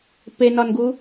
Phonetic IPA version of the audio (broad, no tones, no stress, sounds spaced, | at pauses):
p e n ɒ n ɡ u